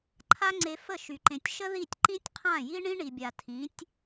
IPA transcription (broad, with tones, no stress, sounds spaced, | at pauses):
ǃʰ a˦ ŋ͡ǀ e˧ f ə˦˨ ʃ y˨ ǃ ẽ˨ tʲ ʃ ə˦ ð i˦˨ tʲ ǃ ĩ˦ tʲ qʰ ã˦˨ j i˦ ɳ ĩ˦ ɳ i˨ bʲ a˨ tʰ ĩ˨˦ tʲ